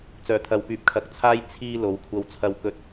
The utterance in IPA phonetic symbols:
t͡s œː˨˩ t̪ʰ ɐ˨ w p yː˨ p̚ kʰ ɐ˨˥ k̚ t͡sʰ aː˥ j t͡sʰ iː˧ l o˨˧ w kʷʰ ɐ˧ w t͡sʰ ɐ˥ w k ɵ˥ t̚

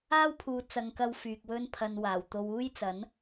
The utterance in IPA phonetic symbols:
aː˥ w pʰ uː˨ t͡s ɐ˨ ŋ k ɐ˧ w f yː˨ k̚ w ɵ˥ n pʰ ɐ˧ n w aː˨˩ w t̪ o˧ w uː˥ j t͡s ɐ˨˥ n

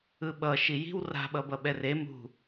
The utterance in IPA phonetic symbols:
ɯ ɓ ʌ ʃ i j i̤ w r a̤ ɓ ʌ b ʌ ɓ ɛ r e m ṳ

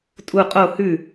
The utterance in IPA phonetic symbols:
tʼ u qʼ o h ʉ

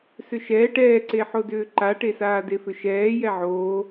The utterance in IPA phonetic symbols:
s ʏ ʃ ɛː ʈ ɛː ǀ e ħ o d ʏː ǃ a ʈ e s aː d e f ʏ ʃ ɛː j ɛ ʕ oː

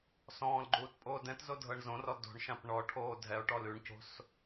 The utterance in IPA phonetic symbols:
s ɔ̃ː l ɡ͡ǃ uː t pʼ oː d ɛ̃ t z o dʱ ɤ ɳ z õ r ɔ d o̤ ɳ ʃ ã p ɳ ɔ ʈʰ oː dʱ ɛ o̯ ʈ ɔ l ʉ ɳ c o̤ s

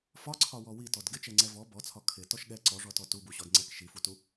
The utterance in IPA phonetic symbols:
f ɒ ǀʰ ɒ w ɔ w i t ɔ d ɡ ɪ t͡ʃ ɛ ŋ͡ǀ ɛ v ɔ b ɔ t͡sʰ ɒ kʰ ɪ t ɔ ʃ ɠ ɛ ǀ ɔ ʐ ɔ t ɔ t u b u ɕ ɔ d ŋ͡ǀ ɛ k ʃ i f u t u

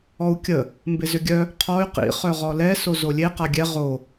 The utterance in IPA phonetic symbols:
ɔ u̯ kʲ ə | m b ɪ z ʏ ɡʲ œ | qʰ ɔ y̯ q ḭ χ œ ʁ ɔ l ɛ s o z o lʲ e q a ɡʲ ɛ ʁ o

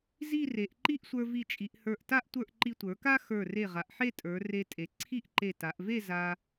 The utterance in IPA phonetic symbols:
z i˥˧ r e˩˧ ʔ ǃ i˥ ʔ sʷ ə˞˧ v i˧˩ t͡ʃʼ i˩˧ ʔ h ə˞˧˩ ʔ t a˥ ʔ tʷ ə˞˥˧ ʔ ǃ i˧ tʷ ə˞˩˧ k a˥ x ə˞˧˩ r e˧˩ ʁ a˩˧ ʔ ħ e˥˧ tʼ ə˞˩˧ r e˧ tʼ e˩˧ ǀʰ i˥˧ ʔ ǃ e˧˩ t a˩˧ ʔ v e˥˧ z a˧

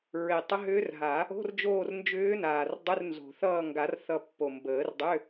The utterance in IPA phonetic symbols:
ɹ e˨˩ tˤ ə˧˥ ɦ ʏː˧˥ r ɦ a˨˩˦ | o̤˧˥˧ r d͡ʒ oː˦˨ r n d͡ʒ ʏː˧˥ n aː˨˩ r dˤ ʏ˧˥˧ r n z o̤˨˩ θ ʌː˦˨ ŋ ɡ a˨˩˦ r θ ʌ˦˨ pː o˨˩ m b əː˨˩˦ r dˤ ʏ˧˥˧

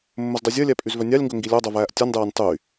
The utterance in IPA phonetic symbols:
mː ɵ z dˤ ɵ zʲ œ lʲ æ pʼ y z v œ nʲ ɑ lʲ ŋ ɡ ɵ ŋ ɡ i lʲ ɑ dˤ œ v æː ʔ tʲ ɔ nʲ dˤ æː nʲ tˤ y

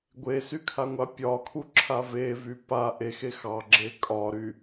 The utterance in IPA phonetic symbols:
ɡʷ e s y kʰ a ŋʷ a pʲ ɒ kʰ u ǁʰ a v e v y p a ʔ e x e x ɑ ɡ͡ǁ e kʼ ɒ ɾ y

